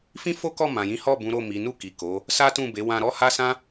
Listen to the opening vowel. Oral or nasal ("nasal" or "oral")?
nasal